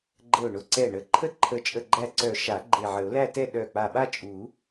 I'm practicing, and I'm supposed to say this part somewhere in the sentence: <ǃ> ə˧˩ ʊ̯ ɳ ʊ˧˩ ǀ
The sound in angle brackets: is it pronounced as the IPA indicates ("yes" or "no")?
no